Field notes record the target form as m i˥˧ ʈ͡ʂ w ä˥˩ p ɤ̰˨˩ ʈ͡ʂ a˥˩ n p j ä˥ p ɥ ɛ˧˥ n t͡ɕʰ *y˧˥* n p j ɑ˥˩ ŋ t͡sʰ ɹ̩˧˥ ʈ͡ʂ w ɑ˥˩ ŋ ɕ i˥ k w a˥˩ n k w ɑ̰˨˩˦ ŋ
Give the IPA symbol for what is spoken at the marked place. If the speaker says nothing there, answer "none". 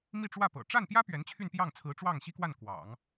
y˥˧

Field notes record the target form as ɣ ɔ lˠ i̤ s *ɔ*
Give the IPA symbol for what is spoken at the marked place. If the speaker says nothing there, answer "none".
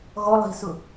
ʊ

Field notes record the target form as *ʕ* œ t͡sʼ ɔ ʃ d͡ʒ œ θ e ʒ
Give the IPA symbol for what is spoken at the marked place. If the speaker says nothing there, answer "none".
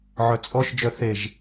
ʕ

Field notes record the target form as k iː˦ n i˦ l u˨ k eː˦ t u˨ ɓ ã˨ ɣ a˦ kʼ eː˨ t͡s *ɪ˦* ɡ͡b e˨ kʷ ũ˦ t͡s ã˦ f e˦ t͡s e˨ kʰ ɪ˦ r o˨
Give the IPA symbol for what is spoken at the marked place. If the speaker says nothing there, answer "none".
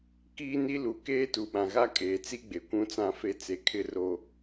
i˦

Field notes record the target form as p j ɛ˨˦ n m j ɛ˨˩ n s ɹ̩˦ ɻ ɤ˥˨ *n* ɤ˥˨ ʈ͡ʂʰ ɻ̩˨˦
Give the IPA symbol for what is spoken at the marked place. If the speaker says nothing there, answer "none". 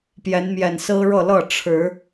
l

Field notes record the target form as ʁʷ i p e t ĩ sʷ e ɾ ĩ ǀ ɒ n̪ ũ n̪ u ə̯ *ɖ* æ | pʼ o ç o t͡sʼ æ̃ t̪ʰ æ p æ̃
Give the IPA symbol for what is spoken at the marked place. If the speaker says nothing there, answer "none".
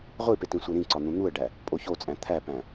ɖ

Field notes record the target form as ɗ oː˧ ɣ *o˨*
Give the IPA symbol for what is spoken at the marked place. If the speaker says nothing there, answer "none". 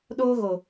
o˨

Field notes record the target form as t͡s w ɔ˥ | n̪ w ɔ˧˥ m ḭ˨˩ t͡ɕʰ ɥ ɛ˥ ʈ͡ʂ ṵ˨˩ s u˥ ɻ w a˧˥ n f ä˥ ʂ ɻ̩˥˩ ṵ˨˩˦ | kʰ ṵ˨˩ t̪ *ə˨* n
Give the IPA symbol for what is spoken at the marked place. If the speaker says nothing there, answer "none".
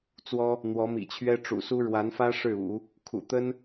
ə˥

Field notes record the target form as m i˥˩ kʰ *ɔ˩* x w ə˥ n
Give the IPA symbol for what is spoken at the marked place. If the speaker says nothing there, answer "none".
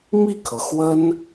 ɤ˩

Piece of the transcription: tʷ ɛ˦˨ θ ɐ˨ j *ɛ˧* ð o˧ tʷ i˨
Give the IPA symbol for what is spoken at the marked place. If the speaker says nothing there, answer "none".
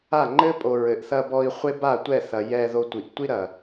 ɛ˧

